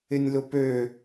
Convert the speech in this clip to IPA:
ɪ nʲ l ʊ p ø

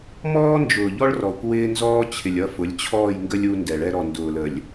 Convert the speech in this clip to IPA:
m ɔː˦ n d͡ʒ ʊː˨ ʎ ɔ˦ ɭ r ɔ˨ kʷ w ɪː˦ n z ɔː˦ t͡ɕʰ ɪ˨ lʲ ʌ˦˨ f ʊ˨˦ lʲ t͡ɕʰ ɔː˦˨ j ŋ ɡ ə˦ lʲ u˦ n d ɛ˨ ɭ ɛ˦ ɾ ɔ˨ n d ʊː˨ l ə˨ lʲ

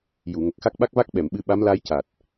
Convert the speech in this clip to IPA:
j u˨˩˨ ŋ ə˨˩ k̚ x a˦˥ k̚ ɓ a˦˥ k̚ v a˦˥ k̚ ɓ ɛ˨˩˨ m ɓ ɨ˧ ɓ a˧˥ m l a˧ j c a˨˩ t̚

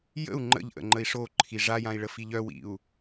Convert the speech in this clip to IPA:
j ə̰ u̯ ŋ͡ǃ ə̰ ʎ ʔ ə̰ ŋ͡ǃ ə i̯ ʂ o ǃʰ i ʐ a j ã i̯ ɭ ə f i ʎ œ w ḭ u̯

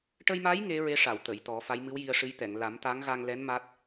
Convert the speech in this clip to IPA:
ʈ ə˧ j m a˧˥ j ŋ e˧˥ ɹ e˧˥ ʂ a˨˩˨ w t̪ ə˨˩˨ j t̪ ɔ˨˩˦ f a˧˥ j m ɨ˧˥ w j i˧ ə̯ ʂ ɨ˧˥ j t̪ ɛ˨˩˨ ŋ l a˨˩˦ m t̪ a˧˥ ŋ ɣ a˧ ŋ l ɛ˧˥ n m a˦˥ t̚

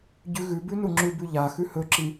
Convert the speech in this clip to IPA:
ɟ ʉ ɣ ʉ b ʉ n u ŋ͡ǁ ʉ b ʉ ʎ a x ʉ h ɵ ǁ i

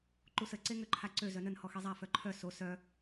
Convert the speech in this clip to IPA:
ǃ u s ə ǀ e ŋ ø ǃʰ a ǀ ø z œ n ə n h ɔ x e zˤ a f œ ǃʰ œ s o s œ

